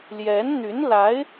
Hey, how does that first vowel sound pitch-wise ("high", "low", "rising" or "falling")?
rising